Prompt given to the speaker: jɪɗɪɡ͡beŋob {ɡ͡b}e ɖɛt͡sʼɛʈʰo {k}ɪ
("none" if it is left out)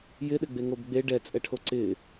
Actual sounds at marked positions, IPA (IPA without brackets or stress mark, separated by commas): ɡ͡b, ǀ